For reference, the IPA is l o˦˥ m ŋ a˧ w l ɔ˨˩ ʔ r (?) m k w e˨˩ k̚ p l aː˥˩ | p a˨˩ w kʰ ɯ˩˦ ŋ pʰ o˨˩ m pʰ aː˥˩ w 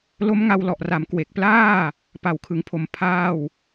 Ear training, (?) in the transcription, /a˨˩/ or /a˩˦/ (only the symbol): a˩˦